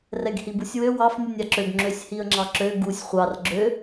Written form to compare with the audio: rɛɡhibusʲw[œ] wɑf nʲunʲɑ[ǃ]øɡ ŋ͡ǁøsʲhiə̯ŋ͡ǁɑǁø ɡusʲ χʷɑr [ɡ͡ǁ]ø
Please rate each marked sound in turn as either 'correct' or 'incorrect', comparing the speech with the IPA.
incorrect, incorrect, correct

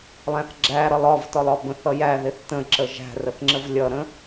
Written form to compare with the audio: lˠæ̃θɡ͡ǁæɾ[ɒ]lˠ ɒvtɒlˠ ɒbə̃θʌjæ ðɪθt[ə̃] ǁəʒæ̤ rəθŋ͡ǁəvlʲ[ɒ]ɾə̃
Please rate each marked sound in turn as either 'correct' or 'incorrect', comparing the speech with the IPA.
incorrect, correct, incorrect

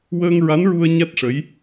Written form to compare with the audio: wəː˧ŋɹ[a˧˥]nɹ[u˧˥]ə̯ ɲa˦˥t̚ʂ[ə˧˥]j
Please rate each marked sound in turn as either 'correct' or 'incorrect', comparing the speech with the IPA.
correct, incorrect, correct

